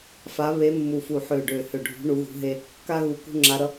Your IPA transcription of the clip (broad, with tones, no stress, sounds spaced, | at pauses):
f a˧˥ β e˧˥ mː u˧˩ f u˧˩ ħ ø˧˩ ɖ ø˧˩ h ø˧˩ ɖʱ ṳ˧˥ ɳ u˧˥ ɣ ṳ˧˥ ɦ e˥ | k a˥ ɣ u˧˩ k ṳ˥ ŋ͡ǁ a˧˥ ɾ ʌ˧˥